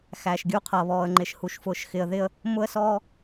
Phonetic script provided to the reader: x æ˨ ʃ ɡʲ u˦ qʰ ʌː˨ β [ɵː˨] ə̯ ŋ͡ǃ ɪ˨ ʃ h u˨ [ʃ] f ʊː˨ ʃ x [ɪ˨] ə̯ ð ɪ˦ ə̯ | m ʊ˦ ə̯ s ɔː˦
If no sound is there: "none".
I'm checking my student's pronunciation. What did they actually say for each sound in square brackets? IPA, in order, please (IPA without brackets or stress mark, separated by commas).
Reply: ɔː˨, ʃ, ɪ˨